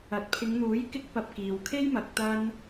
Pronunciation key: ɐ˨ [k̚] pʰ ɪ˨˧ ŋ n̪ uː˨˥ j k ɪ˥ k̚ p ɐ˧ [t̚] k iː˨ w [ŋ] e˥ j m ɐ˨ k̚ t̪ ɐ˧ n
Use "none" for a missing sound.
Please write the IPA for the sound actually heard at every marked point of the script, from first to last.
t̚, p̚, kʰ

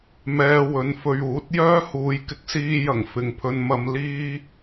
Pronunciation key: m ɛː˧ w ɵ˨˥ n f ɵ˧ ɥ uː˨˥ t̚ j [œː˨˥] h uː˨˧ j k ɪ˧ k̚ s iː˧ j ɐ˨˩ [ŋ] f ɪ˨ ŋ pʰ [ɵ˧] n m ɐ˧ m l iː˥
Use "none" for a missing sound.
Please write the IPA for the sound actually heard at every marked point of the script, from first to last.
œː˥, ŋ, ɵ˧

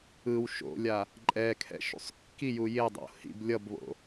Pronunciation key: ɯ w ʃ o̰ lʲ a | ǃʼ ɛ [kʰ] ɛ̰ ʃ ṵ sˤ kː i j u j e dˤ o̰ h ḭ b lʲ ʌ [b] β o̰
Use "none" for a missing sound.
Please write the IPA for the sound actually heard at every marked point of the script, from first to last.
kʰ, b

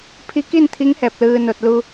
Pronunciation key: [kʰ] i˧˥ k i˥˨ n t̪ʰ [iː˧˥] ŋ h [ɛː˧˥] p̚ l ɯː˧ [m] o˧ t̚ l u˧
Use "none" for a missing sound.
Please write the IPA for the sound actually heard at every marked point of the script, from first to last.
pʰ, i˧˥, ɛː˧, n

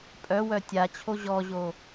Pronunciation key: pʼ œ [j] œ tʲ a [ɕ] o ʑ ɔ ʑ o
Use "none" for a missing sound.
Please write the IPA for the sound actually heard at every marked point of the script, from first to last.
w, t͡ɕʰ

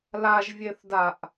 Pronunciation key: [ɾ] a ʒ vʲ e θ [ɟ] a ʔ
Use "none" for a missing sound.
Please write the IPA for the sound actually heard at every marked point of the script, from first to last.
l, d

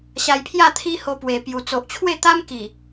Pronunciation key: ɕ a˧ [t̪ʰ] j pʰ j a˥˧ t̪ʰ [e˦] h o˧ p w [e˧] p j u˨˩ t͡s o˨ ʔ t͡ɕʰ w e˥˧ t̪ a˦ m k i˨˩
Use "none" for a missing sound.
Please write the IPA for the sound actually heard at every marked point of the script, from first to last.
none, i˦, e˨˩

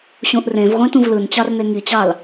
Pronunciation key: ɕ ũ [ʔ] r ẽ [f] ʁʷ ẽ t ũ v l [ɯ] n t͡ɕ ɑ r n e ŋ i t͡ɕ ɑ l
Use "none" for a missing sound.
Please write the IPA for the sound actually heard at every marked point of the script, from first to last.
ʔ, v, ɯ

